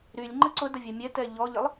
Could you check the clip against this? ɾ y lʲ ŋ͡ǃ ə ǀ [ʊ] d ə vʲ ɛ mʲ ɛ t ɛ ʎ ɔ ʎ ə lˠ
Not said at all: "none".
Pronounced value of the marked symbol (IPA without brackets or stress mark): ʊ